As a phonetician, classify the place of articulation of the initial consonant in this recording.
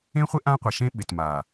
uvular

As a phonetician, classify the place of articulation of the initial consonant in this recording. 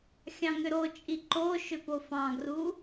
velar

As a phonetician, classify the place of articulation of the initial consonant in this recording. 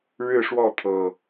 retroflex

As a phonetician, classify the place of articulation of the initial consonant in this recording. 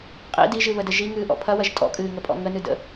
uvular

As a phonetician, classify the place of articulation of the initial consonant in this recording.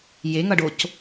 palatal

